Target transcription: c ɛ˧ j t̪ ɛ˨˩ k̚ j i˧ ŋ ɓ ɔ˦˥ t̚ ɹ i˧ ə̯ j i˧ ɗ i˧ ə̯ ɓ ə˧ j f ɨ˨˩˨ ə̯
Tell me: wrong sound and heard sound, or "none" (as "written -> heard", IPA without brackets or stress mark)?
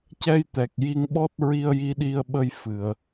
none